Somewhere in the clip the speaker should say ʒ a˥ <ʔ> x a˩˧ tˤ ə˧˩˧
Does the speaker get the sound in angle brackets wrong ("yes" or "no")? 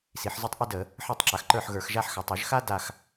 yes